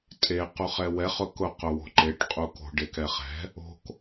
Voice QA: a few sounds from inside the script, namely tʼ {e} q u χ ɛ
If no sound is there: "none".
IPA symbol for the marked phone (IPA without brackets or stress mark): e